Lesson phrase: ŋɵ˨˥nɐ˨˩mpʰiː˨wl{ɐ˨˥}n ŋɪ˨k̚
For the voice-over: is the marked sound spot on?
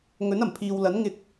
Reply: yes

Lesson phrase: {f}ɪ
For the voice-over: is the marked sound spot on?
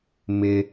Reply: no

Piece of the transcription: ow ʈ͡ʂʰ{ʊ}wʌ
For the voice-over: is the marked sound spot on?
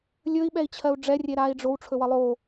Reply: no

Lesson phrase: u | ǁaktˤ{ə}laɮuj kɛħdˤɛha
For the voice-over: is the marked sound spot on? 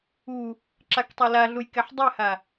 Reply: no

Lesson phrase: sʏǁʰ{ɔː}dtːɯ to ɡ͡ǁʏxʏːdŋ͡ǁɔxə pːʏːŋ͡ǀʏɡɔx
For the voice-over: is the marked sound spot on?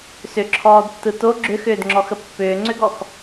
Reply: yes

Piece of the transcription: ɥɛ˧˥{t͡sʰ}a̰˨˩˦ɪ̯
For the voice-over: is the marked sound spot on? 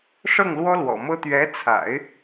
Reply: yes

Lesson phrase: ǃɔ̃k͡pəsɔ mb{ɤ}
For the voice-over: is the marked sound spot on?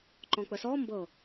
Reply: yes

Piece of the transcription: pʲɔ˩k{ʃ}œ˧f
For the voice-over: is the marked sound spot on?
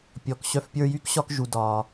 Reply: no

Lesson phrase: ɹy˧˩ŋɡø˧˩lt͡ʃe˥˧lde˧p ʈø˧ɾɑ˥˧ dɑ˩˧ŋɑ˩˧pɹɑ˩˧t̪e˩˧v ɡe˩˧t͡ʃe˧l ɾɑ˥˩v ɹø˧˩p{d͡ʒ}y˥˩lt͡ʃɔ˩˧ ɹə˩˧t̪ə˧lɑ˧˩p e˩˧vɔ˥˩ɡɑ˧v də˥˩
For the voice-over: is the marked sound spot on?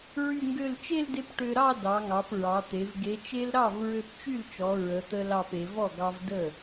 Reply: no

